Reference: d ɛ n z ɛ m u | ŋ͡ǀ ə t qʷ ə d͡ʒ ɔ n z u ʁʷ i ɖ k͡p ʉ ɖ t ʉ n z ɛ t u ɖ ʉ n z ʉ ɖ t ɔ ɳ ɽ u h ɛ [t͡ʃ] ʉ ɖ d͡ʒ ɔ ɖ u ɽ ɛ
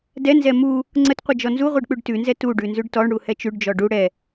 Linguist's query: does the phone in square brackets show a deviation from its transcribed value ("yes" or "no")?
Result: no